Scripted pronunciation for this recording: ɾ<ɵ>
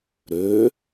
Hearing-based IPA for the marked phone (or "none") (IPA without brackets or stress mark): ø